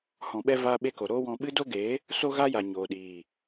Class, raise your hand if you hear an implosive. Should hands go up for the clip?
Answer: yes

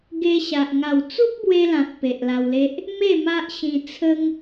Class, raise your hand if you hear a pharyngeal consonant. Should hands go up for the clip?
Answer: no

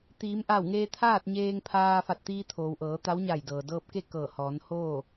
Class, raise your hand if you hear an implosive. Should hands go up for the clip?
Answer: no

